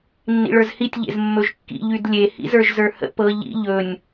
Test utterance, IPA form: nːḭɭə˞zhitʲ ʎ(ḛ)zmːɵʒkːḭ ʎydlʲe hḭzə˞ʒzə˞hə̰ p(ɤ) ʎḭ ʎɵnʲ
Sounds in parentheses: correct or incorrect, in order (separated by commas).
correct, correct